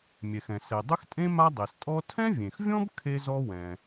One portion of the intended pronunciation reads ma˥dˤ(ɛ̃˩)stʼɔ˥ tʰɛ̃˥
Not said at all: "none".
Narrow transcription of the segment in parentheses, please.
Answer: ɛ˩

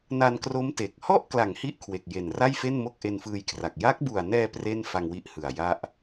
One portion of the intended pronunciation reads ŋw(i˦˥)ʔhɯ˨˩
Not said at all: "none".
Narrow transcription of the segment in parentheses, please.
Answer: i˦˥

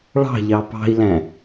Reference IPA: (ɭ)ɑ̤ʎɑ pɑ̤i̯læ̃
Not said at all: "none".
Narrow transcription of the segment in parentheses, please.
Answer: ɭ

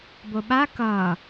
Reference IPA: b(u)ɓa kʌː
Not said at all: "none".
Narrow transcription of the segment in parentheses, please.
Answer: o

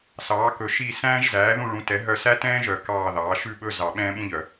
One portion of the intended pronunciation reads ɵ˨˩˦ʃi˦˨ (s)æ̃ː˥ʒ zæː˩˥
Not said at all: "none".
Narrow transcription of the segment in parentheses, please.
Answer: s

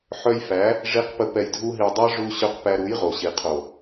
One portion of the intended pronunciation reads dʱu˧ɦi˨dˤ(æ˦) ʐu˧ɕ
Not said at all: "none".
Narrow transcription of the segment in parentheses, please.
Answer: æ˦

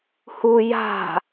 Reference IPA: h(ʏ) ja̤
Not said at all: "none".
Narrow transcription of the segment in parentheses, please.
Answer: u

